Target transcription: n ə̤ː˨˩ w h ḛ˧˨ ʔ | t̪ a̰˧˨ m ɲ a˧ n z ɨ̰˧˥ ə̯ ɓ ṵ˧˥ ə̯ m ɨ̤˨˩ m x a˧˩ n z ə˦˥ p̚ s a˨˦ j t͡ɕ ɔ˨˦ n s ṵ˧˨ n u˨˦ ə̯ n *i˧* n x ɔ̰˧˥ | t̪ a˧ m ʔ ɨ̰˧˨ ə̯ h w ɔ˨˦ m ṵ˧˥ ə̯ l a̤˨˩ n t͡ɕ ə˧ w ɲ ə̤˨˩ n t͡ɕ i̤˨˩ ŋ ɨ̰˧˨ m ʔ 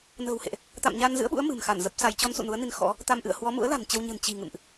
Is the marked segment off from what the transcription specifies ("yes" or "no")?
no